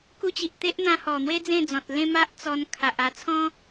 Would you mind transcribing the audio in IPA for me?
k u˧ t͡ɕ i˨ ʔ t̪ e˦ ʔ n̪ ã˧ h ɔ˨˩ n̪ w e˦ d͡z ẽ˥˧ d͡z ɔ̃˨ t̚ l ẽ˦ m a˦ ʔ t͡s ɔ˧ n kʰ a˨ ʔ a˧ t͡sʰ ɔ̃˦

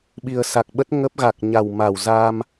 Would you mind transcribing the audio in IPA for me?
ɓ i˨˩ ə̯ s a˨˩ k̚ ɓ ə˦˥ t̚ ŋ ə˦˥ p̚ ɣ a˨˩ k̚ ɲ a˨˩ w m a˧˩ w z a˧ m

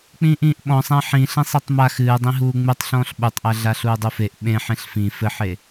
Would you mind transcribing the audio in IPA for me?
k͡p ĩː ʔ ĩː ʔ ɓ ɔ̃ sˤ æ̃ ħ ĩ ɬ ẽ sˤ i tˤ m a x ɨː dˤ ĩ ɦ uː ŋ͡m ɨ tˤ ɬ ɔ̃ː ɬ ɓ u tˤ ʔ æ ɮ a ɬ uː dˤ u f e ʔ ɓ ẽ ħ ẽ ɬ f ĩ f ɘ ħ e

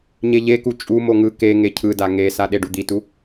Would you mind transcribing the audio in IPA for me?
ɲ e ʎ e k u t͡ʃʼ u m o ŋ ɯ k e ŋ e cʰ ɯ d a ŋ e s a ɗ e ɖ u d̪ i t u

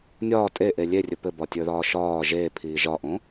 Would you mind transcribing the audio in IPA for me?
nʲ ɒː tʼ e ʔ e lʲ e rʲ ɵ p ɘ b ɒ tʲ ə˞ ð ɒː ʃ ɒː ʒ eː pʰ iː ʒ ɒ ʔ õ

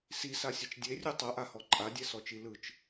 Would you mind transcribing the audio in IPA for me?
s i s a sʲ ɛ t͡ʃ dʲ e rʲ u tˤ ɤ ʔ a h ɔ ǃʼ a dʲ ɛ s ɔ t͡ʃ i l ɯ t͡ʃ

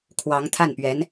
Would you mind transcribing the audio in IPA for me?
kʰ w ɑ˧˥ ŋ t̪ʰ a˥˩ n p ɥ ɛ˧˥ n

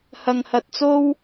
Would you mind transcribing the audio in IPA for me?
h ɐ˧ ŋ h ɐ˧ t̚ t͡s o˥ w

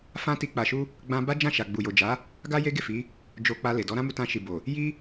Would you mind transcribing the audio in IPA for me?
f ã˦ t i˧ k͡p a˨ ʃ u˧ | ɡ͡b ã˧ b a˦ d͡ʒ ã˦˨ ʃ a˨ ɡ͡b u˨ j o˨ d͡ʒ a˨˦ | ɡ a˦ j e˦ ɡ e˦˨ f i˨˦ | d͡ʒ o˧ k͡p a˧ l e˨ d ɔ˨˦ ɾ ã˦ m u˧ t ã˧ ʃ i˨ b o˨ | j i˦

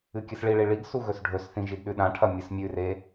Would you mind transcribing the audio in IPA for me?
ɨ kʲ ɨ s ɭ i ɭ i ɭ i ɡ s u ɣ ɵ s ɖʱ ɵ s θ ĩ ʒ i d ɗ ʉ ɗ ã ʈʰ ɐ mʲ ɨ s mʲ ʉ r e

